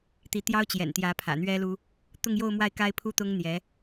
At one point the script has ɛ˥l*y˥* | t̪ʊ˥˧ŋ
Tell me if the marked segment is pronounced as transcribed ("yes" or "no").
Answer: no